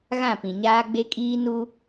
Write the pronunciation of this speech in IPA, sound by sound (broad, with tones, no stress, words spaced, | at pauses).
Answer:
ɣã˦˨pĩ˨ɲaː˦ ɡ͡be˦kʼiː˦ nu˦